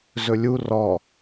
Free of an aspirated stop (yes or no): yes